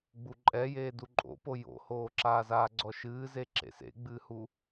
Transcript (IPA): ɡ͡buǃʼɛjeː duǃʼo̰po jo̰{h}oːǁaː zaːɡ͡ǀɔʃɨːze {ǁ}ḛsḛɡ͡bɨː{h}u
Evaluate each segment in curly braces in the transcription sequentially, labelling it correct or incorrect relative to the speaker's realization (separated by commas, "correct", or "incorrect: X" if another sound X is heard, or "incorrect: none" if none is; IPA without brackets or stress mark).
correct, correct, correct